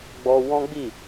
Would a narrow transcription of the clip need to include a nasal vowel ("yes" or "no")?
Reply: yes